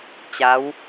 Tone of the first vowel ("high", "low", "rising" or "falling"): rising